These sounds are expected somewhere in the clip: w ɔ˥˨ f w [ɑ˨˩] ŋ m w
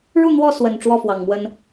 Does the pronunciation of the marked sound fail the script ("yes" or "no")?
no